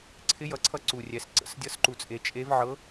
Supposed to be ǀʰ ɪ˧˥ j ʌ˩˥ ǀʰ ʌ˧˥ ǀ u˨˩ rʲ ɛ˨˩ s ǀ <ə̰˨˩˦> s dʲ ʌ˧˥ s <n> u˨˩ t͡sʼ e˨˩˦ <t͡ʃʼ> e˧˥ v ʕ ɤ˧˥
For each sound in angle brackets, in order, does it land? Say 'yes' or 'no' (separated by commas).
yes, no, yes